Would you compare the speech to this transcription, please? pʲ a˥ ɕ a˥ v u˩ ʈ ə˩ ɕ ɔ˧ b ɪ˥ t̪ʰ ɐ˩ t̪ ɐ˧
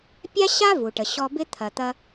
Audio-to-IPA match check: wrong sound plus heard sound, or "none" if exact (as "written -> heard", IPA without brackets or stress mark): none